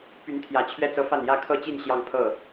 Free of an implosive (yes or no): yes